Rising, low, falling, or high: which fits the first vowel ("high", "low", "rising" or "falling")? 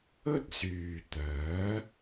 high